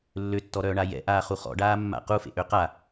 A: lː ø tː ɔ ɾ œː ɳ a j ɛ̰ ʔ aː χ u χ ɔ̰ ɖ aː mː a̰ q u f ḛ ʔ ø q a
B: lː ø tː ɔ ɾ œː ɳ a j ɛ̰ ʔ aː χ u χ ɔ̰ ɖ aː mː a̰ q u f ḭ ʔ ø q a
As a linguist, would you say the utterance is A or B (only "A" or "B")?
A